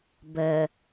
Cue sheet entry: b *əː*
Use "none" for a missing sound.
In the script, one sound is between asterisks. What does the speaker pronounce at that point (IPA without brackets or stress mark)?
ə